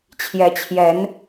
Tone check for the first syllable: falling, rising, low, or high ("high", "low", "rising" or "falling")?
rising